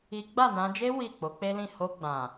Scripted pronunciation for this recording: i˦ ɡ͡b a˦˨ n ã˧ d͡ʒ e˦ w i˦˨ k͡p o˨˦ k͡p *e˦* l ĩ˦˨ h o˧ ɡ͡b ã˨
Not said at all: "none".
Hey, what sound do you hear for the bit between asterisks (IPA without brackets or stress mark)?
e˦